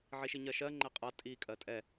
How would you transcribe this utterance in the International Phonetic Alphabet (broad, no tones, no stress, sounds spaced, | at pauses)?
ʕ i ʃ i ɲ ɜ ʃ ɜ ŋ͡ǃ ɛ qʼ a tʼ i kʼ ɜ tʼ ɛ